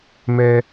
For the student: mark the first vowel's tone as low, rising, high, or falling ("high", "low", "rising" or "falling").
high